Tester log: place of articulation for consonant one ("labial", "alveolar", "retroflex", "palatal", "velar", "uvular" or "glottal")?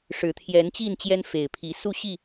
retroflex